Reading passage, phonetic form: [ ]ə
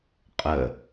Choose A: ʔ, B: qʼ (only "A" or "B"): B